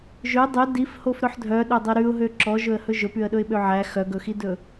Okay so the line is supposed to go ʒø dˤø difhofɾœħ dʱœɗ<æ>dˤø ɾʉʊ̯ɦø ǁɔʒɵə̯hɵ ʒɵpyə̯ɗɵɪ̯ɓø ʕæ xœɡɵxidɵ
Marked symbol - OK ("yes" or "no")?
no